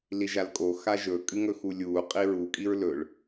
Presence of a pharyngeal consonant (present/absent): absent